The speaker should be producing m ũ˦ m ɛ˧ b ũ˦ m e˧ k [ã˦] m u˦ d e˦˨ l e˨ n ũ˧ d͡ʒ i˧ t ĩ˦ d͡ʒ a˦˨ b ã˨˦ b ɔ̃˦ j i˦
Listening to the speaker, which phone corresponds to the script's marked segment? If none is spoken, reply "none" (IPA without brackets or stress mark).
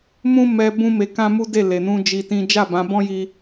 ã˦